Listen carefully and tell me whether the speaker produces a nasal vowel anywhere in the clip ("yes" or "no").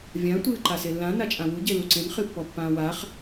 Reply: yes